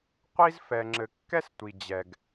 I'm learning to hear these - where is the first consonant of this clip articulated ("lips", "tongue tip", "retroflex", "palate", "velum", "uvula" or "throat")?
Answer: uvula